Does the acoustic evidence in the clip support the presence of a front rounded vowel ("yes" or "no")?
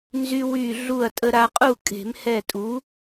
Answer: yes